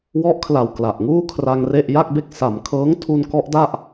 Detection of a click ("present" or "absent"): absent